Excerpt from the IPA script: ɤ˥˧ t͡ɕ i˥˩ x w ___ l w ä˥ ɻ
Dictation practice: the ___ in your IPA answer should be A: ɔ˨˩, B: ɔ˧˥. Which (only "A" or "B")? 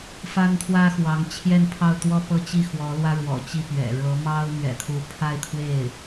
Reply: B